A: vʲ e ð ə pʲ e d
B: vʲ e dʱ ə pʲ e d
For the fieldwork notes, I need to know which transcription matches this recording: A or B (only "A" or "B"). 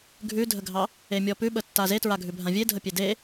B